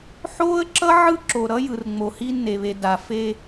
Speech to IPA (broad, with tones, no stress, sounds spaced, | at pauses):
ħ oː˦ ə̯ ǁ ʌ˦ ʕ ɯ˦ ǁ o˨ ɾ ʌ˦ j ɯ˨ r ŋ͡m o˨ h i˦ nː e˨ β e˨ d a˨ f e˦